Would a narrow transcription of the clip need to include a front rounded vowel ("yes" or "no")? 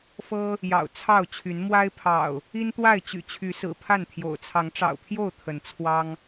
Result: yes